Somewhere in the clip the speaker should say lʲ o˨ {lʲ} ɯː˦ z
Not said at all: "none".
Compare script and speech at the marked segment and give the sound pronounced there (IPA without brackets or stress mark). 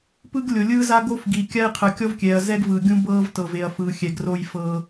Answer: lʲ